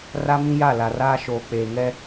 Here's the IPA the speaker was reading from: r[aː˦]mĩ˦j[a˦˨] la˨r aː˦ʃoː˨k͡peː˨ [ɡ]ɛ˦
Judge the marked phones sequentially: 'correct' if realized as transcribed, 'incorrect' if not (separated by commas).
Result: incorrect, correct, incorrect